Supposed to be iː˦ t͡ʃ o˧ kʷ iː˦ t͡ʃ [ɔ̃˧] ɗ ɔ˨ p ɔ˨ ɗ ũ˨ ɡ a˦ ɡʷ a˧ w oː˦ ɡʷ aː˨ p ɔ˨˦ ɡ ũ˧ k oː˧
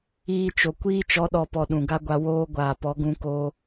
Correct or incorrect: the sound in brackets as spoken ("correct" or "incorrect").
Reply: incorrect